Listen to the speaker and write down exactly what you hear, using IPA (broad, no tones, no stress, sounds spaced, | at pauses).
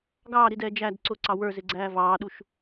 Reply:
ɡ ɑː ɾ i d ɛː d͡ʒ æ d ǀ ʊ ǀ ɑ w ə˞ z ɪ ɡ͡ǀ æː v ɑː ɗ u ʃ